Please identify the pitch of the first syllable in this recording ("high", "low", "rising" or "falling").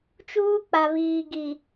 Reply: high